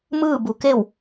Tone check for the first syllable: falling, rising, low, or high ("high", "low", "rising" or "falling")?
falling